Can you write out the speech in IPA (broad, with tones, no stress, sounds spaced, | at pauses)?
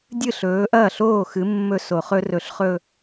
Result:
dʲ ɨ˥˩ ɬ ɵː˩˧ ʔ ɐː˥˩ ɬ oː˥˩ x ɨ˩˧ mː ɵ˧˩ s o˧˩˧ χ ɵ˦˥ r ɵ˧˩ ɬ χ ɵ˥˧